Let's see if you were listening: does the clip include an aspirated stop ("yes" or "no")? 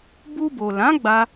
no